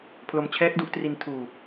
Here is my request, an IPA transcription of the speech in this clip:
pʰ l o˧ m t͡ɕʰ ɛː˦˥ k̚ d u˦˥ ʔ t r i˧ n tʰ uː˧

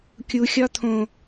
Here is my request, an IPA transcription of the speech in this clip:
kʲ u xʲ ɒ t̪ʰ õ

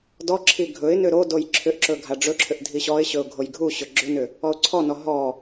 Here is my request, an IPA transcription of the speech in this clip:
d ɔ ǁʰ i ɡʱ ɵ ɪ̯ n ʏ ɾ o d o j ǁʰ ʏ ʔ ǁ ɵ ɡʱ a ɖ͡ʐ ɵ ǁʰ ʏ ʔ dʱ i ɕ ɔ ɪ̯ ɕ ɵ ʊ̯ ɡʱ o j ɡʱ u ɕ ɵ ɡ͡ǁ ʏ n ʏ | ɔ ʊ̯ ǀʰ ɔ n ɔ ɦ ɔ

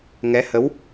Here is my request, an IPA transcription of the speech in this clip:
ŋ ɛ˧˥ h ə˧˥ w

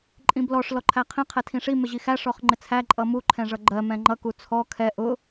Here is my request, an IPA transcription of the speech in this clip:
ǃʼ ĩ b l ɔ ʂ l ɔ ǃʰ æ qʰ ĩ qʰ ɛ tʰ ĩ ʂ i m ɪ ʑ i x æ ʂ ɔ χ ŋ͡ǃ ɪ t͡sʰ æ ǃʼ ʌ m u ǃʰ ɛ̃ ʐ ʌ ɡ͡ǃ ɜ m ɛ̃ ŋ͡ǃ ʌ k u t͡sʰ ɔ kʰ ɛ ʔ ʊ

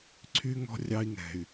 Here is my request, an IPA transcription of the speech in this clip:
ǀʰ y˧ ŋ ɔ̤˧ rʲ ɑ˧ i̯ ŋ ɛ̤˨˩ y̯

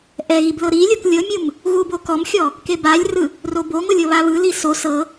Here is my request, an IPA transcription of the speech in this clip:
ʔ ɛ ɣ i b l ɤ ɾ i lʲ o k lʲ ɤ mʲ ɯ m | ɣ u b o k ɔ m xʲ ɔ | k e b a lʲ r ɯ | r o b o ŋ o lʲ ɤ β a β ɯ l i s o s ɤ

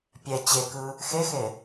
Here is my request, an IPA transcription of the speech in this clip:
pʲ ɛ t͡ɕ e k ɯ | x e x e

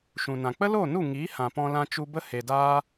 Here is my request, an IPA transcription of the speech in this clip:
ʃ ũ˨ n ã˨ k͡p ə˦ l oː˦˨ n u˦˨ ŋ iː˨˦ h ã˨ p ɔ̃˧ l ã˧ t͡ʃ u˧ b ə˦ h e˨ d aː˦

